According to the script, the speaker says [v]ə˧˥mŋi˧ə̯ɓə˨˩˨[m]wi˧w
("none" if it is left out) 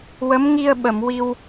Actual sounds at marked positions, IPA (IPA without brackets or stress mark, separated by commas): w, m